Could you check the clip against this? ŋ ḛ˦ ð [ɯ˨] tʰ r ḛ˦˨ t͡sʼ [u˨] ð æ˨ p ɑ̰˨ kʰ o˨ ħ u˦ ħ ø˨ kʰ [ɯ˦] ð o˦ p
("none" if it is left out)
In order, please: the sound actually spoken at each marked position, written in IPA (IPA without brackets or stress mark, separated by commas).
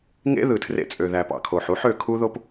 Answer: ɯ˨, ø˨, u˦